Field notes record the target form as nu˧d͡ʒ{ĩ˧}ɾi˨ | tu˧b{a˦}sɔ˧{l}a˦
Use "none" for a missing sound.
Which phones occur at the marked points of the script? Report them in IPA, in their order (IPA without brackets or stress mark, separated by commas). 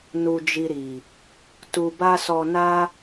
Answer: i˧, a˦, n